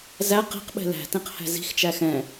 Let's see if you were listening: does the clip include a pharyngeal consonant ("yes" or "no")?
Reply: no